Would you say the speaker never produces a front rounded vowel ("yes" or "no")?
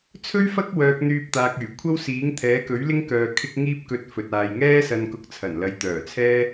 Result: no